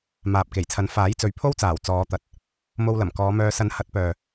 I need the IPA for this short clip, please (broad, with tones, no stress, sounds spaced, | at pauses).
m aː˨ p̚ k e˨˩ j t͡sʰ ɐ˨˥ n f aː˨˥ j t͡s ɵ˨˥ ɥ pʰ o˥ w t͡s aː˨˩ w t͡s ɔː˨˧ t̪ ɐ˨˥ t̚ | m o˧ w l ɐ˨˩ m k ɔː˨˧ m œː˧ s ɐ˨˥ n h ɐ˨˥ t̚ p œː˨